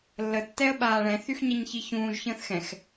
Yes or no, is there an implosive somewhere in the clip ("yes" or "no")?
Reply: yes